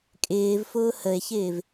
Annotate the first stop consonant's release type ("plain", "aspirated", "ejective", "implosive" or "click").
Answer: ejective